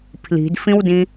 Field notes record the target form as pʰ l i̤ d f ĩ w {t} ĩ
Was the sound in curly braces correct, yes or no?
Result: no